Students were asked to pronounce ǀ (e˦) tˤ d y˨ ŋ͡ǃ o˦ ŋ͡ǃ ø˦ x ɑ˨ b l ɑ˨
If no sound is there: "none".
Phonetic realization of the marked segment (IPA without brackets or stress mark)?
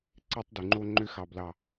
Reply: e˦